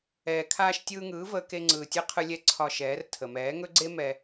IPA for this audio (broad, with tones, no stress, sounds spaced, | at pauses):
ɛː˨ kʰ aː˧ ʃ tʲ ɯː˧ ŋ ɯː˨˦ v əː˧ k e˧ ŋ͡ǀ ɯː˨ tʲ ɯ˧ qʰ ɯ˧ lʲ ɛ˧ ǀʰ ɒ˧ ʃ ɛː˨˦ r tʰ ə˨ m ɛː˨˦ ŋ ɵ˦ ɡ͡ǀ e˦ m ɛ˧